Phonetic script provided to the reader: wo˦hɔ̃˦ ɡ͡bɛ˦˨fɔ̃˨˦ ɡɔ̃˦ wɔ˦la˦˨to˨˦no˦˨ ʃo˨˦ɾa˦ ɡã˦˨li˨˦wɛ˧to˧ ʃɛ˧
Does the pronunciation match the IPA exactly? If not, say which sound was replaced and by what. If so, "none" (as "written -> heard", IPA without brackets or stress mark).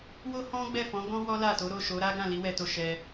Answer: n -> ɾ